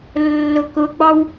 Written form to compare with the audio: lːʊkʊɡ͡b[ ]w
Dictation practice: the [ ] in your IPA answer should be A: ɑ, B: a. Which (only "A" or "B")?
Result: A